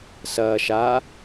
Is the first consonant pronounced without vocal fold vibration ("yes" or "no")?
yes